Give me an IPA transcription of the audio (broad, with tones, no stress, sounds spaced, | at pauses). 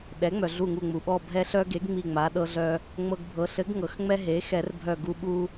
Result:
ɗ ɛ˩˥ ŋ͡m œ˩ ɮ u˧˩ ŋ u˧˩ ŋ͡m u˩ ɓ ɔ˧˩ bʱ ɛ˧ ɬ œ˧ ɡ e˩˥ ɡ ŋ͡m i˧˩ ŋ͡m a˩˥ ɗ ɤ˧ ɮ œ˧ | ŋ͡m ɤ˧ ɡ bʱ ɤ˩˥ ɬ ɘ˩˥ ɡ ŋ ɤ˩ x ŋ͡m ɛ˧ ɦ e˩˥ x ɛ˨˩˦ r bʱ œ˧˩ ɡ u˧ ɓ u˧